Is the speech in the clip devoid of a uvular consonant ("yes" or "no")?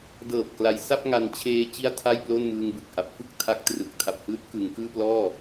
yes